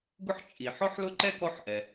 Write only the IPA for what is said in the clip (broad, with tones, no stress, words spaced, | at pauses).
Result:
ɡʊ˦ħ t͡ʃʼi˩ ħɔ˦ħlʊ˦ ǃɛ˥kɔ˦ħʔɛ˩